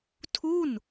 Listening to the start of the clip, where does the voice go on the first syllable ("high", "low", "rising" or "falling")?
falling